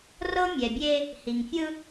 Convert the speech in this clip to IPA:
r ɤ˦ mʲ ɛ˨ bʲ e˦ | h i˨ ŋ fʲ ɯ˦

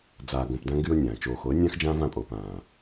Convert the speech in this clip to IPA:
d͡z aː˨ ɡ õ˨ p d ã˦ ŋ ɡ y˦ ʊ̯ nʲ ãː˨ t͡ʃ oː˨ x o˨˦ ə̯ nʲ ã˦ x d͡ʒ ãː˦ v ã˦˨ pʼ oː˨ p ãː˨

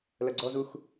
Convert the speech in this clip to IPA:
l ɐ ɡ͡ǀ ɔ z u x

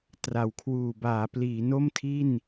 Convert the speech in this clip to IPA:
t r a˩˦ w kʰ w uː˨˩ b aː˩˦ p l iː˩˦ n o˥˩ m tʰ i˥˩ n

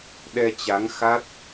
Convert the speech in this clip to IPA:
ɗ ɛ˧ t͡ɕ a˨˦ ŋ x a˦˥ t̚

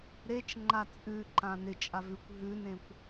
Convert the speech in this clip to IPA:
ɾ e t͡ʃ ŋ͡ǃ a t͡sʼ ʉ ǃ ã n ɪ t͡ʃʼ a v ʉ kʷ ɦ ʉ n ẽ kʷ

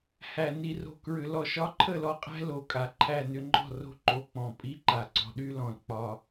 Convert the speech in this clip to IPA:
h æ˨ n i˨ r o̤˨ k ɹ ʏ˨ l ɔ˨ ʃ ɒ˦ ǃʰ ə˦˨ l ɔ˦ qʼ æ̤˦ l o˨ kʼ a˨ ǃʰ æ˦˨ n ʏ˦ ŋ͡ǃ ɔ̤˦˨ r o̤˦ ǃ o˨ k͡p ɔ̃˨ pʼ i˦ ǃ a˨ ǀ ɔ̤˨ ɗ y˦ l ɔ̃˨ l k͡p ɒ˦

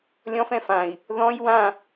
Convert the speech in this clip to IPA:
lʲ ɔ̃ f ɛ̃ f ã i̯ | ð ɔ̃ j w ã

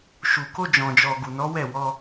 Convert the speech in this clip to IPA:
ʃ u˨ k o˧ d͡ʒ ɔ̃˨ d͡ʒ ɔ˨ ɡ u˨ n ɔ˨˦ w ɛ˦˨ w ɔ˧

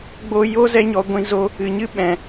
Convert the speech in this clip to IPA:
ɡ͡b o˧ j o˦ z ɛ˦ ɲ ɔ˧ ɡʷ ĩ˧ z o˧ | ɨ˨ ɲ ɨ˦ ɓ ɛ̃˨

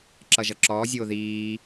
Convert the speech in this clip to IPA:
ǁ ʌ ʒ ʌ ǁ ɔː zʲ oː ð iː

